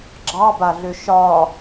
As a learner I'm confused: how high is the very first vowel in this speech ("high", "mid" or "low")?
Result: low